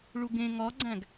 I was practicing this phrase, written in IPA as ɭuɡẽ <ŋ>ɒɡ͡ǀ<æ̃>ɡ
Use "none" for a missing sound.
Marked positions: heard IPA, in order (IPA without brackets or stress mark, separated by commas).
ŋ, æ̃